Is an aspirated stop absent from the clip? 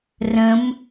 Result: yes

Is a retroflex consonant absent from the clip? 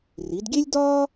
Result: yes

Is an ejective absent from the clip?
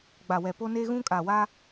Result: no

